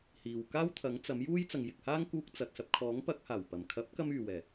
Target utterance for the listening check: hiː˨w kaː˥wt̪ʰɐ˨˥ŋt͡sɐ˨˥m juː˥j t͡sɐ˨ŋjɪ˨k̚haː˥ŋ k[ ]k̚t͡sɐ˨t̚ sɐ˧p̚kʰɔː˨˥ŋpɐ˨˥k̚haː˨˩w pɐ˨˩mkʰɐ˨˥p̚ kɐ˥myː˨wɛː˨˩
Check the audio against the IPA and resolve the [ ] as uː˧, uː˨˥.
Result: uː˧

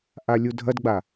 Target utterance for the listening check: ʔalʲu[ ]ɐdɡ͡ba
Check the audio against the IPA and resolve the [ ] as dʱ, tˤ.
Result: dʱ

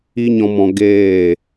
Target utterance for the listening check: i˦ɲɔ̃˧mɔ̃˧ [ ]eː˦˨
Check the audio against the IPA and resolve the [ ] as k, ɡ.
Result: ɡ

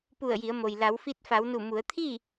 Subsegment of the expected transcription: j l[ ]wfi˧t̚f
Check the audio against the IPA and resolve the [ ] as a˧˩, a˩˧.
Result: a˩˧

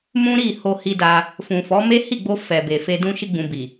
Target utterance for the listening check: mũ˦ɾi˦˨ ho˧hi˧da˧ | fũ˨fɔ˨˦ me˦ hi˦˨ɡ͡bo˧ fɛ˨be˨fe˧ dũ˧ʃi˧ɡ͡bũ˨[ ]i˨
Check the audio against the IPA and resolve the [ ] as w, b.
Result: b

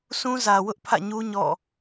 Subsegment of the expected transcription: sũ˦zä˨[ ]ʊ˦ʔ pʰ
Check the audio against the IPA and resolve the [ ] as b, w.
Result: w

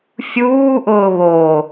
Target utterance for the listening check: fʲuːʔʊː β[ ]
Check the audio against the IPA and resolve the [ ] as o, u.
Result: o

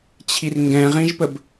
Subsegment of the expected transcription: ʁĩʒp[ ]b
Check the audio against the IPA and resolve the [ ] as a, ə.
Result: ə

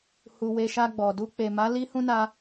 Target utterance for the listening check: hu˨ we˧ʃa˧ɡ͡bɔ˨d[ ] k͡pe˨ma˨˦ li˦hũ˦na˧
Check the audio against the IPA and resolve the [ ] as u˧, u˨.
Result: u˧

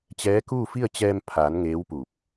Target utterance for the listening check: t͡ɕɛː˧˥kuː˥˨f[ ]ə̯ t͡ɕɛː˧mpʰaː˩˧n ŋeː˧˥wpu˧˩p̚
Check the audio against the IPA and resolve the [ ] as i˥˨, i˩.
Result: i˥˨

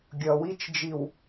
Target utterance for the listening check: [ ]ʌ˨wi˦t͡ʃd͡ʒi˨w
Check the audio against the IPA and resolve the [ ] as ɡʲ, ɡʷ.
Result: ɡʲ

